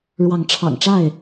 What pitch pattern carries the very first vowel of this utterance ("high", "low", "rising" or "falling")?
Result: rising